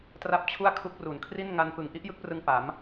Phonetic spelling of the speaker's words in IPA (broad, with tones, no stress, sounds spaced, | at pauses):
t r a˥˩ p̚ t͡ɕʰ u˥˩ a̯ kʰ u˦˥ k̚ r u˨˩ n kʰ r i˥˩ n ŋ a˧ n p ɯ˨˩ ŋ ʔ i˥˩ ʔ j ɯ˦˥ k̚ p r ɯ˧ ŋ p a˩˦ m